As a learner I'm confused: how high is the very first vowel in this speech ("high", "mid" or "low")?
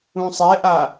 high